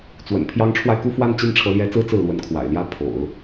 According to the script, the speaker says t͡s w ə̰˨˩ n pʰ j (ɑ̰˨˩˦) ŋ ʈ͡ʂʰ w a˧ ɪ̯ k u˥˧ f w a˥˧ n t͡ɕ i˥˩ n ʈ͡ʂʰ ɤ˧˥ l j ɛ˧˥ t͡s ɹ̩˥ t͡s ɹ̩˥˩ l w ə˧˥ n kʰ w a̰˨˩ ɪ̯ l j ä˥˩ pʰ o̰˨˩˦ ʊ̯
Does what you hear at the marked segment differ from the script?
yes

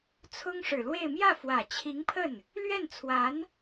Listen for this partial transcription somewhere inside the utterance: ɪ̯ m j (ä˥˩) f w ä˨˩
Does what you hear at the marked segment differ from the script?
no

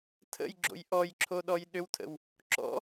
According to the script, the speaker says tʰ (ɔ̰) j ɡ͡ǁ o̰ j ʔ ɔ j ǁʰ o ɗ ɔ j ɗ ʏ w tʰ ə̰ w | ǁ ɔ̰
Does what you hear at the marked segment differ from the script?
yes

